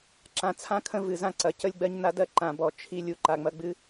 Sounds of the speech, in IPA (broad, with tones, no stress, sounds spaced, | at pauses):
ǁ ã˨ t͡sʰ ã˦ kʰ ə̃˦ v ɨ˨ z ã˦ ǀ ɐ˨ c ə˦ lʲ ɡ͡b ɜ˦ ɲ n a˦ d ɜ˦ ǃ ã˨ b ɔ˨ t͡ʃʰ i˦˨ lʲ u˦ ǃ a˨ ŋ͡m ɐ˦ ɡ͡b ɨ˦